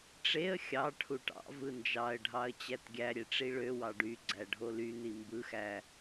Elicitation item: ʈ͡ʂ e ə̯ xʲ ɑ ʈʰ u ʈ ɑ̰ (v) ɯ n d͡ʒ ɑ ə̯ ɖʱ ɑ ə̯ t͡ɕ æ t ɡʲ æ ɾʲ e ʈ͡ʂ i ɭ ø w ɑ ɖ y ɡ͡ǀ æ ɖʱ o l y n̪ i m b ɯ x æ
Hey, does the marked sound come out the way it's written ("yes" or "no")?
yes